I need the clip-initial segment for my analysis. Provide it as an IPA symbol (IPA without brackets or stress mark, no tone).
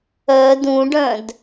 œ